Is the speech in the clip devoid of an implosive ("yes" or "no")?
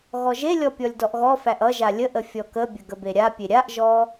yes